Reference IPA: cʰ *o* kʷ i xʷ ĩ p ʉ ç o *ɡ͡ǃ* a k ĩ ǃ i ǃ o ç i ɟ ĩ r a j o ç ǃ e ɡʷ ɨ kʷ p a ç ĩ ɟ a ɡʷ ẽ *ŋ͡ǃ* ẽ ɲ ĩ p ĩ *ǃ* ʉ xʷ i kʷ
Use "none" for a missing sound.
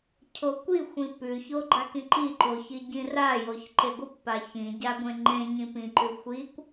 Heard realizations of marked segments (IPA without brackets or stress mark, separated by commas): o, ɡ͡ǃ, ŋ͡ǃ, ǃ